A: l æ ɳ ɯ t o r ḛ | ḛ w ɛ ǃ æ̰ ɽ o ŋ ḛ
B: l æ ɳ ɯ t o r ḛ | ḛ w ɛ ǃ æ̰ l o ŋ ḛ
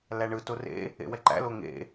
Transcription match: B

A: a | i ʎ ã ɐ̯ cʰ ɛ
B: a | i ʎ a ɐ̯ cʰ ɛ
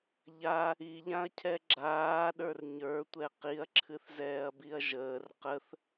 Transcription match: A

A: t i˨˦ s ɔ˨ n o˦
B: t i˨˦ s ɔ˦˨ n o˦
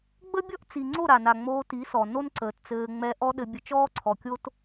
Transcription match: A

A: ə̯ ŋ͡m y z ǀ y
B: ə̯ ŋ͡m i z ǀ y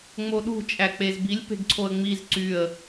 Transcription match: B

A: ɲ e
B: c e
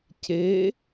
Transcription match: B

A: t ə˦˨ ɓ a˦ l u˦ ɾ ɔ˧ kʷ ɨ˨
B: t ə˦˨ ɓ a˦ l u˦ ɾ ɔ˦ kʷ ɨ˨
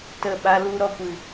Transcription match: A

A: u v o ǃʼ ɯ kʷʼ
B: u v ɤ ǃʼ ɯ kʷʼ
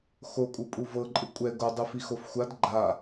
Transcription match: B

